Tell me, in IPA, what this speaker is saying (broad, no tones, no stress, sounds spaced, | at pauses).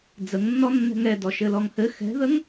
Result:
d͡z ə ŋ nː ɔ nː ɛ̤ ŋ ɛ d ɔ ʃ ɘ l ɔ ŋ h ɘ x ɛ̤ ð ə ŋ